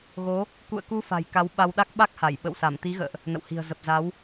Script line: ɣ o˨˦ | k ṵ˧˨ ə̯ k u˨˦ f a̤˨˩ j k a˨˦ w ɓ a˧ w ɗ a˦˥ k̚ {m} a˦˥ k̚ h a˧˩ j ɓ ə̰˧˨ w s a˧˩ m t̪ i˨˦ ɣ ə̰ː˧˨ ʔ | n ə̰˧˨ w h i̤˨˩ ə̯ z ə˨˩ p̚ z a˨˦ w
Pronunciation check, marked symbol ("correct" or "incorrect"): incorrect